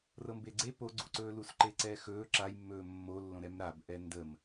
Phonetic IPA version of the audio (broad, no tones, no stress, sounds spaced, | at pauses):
r ɤ m b e ɡ͡ǀ e p o ɡ͡ǀ u ǀ ɵː l u s ǃ e ǀ ɛː x ɵː ǁ a j mː ɵː mː o lː õ ɾ ɛ m ɾ a b ʔ ɛ n d ə m